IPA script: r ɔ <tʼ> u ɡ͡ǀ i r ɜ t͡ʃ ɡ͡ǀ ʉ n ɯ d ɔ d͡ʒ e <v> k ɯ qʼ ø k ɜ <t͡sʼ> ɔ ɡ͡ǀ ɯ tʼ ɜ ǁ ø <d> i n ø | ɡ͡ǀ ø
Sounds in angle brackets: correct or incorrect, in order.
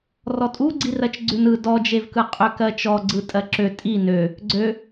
correct, correct, incorrect, incorrect

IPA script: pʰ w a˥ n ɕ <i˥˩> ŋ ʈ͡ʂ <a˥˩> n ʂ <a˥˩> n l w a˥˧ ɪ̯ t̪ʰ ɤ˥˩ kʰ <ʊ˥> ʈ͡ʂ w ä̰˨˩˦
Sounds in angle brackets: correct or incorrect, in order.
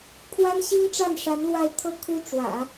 incorrect, correct, incorrect, incorrect

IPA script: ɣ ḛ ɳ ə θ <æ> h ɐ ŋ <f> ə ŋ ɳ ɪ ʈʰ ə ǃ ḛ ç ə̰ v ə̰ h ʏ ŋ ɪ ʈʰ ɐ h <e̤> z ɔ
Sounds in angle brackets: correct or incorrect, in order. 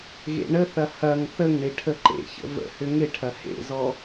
incorrect, incorrect, incorrect

